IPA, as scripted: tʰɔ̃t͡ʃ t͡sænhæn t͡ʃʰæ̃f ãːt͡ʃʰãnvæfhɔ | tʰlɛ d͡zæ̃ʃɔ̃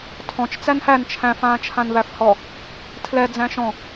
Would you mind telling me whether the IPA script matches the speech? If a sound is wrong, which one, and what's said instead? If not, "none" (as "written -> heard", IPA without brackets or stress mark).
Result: none